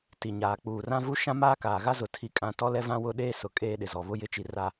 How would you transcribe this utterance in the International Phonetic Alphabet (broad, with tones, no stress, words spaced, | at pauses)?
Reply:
ti˨ɲaː˨ k͡puː˨rã˦vu˦ ʃã˦maː˦ kaː˨ɣa˦zʊ˨ tʰi˦kʼã˦ tɔ˦lɛ˦vã˦ wʊ˦ ɗeː˦sʊ˨ kʼeː˦ɗɪ˨zɔ˨ βʊ˦jɪ˦t͡ʃi˨ra˨